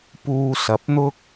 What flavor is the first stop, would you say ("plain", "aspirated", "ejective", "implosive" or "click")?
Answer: plain